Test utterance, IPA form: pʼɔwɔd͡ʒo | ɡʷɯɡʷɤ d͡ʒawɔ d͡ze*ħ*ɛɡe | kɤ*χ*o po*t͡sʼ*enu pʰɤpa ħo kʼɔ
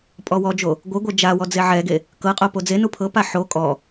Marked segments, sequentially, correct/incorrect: incorrect, incorrect, incorrect

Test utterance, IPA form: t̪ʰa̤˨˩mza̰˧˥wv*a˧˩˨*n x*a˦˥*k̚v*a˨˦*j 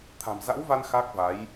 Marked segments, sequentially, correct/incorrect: incorrect, correct, correct

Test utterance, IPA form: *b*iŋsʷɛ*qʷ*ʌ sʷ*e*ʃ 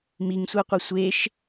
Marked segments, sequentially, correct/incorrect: incorrect, correct, correct

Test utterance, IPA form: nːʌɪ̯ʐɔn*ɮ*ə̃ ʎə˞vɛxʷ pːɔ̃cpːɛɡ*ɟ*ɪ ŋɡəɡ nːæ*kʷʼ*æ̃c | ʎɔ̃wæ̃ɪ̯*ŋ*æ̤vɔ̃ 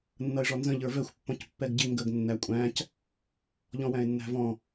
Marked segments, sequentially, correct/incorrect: incorrect, correct, correct, incorrect

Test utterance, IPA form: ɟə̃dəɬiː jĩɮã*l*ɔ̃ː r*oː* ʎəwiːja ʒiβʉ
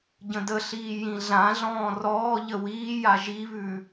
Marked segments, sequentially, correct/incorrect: incorrect, incorrect

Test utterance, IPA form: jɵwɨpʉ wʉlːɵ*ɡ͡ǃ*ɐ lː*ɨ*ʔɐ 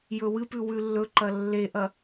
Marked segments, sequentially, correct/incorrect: incorrect, incorrect

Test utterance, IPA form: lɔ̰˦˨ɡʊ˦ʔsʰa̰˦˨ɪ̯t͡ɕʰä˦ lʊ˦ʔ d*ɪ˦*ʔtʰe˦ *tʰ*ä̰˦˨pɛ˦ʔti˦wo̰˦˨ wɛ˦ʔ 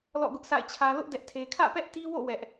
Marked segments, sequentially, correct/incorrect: incorrect, incorrect

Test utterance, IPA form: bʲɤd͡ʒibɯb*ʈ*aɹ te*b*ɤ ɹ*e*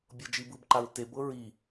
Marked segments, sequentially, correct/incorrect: incorrect, correct, incorrect

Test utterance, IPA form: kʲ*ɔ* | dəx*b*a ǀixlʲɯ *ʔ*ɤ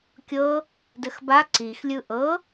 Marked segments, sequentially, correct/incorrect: incorrect, correct, correct

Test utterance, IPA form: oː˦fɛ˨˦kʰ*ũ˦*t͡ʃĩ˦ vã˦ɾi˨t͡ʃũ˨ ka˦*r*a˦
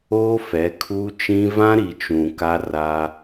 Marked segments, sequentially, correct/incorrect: incorrect, correct

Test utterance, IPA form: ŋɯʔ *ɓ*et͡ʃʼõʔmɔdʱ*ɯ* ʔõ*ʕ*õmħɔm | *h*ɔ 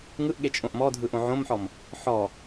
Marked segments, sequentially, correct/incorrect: incorrect, correct, correct, incorrect

